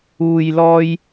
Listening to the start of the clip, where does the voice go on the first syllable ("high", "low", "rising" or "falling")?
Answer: low